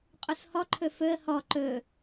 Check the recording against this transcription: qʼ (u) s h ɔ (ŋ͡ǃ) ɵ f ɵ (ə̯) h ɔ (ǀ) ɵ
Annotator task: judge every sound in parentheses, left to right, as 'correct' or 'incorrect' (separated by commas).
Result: correct, incorrect, correct, incorrect